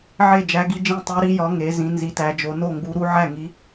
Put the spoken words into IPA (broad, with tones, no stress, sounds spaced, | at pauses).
ʕ e˥˧ d͡ʒ æ˧˥ ɡ i˧˥ d͡ʒ ĩ˥˧ tˤ u˧˥ ɾ i˧˥ j ɒ˧˥ ŋ e˧˥ z ĩ˧˥ n z i˧˥ t æ˧˥ d͡ʒ o˧˥ n o˥˧ ŋ ɡ u˧˥ ɾ u˧˥ ʕ æ˥˧ ŋ i˧˥